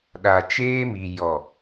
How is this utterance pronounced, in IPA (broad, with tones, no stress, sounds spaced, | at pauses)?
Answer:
ɗ a˨ t͡ʃ eː˦ m i˨ j ɔ˨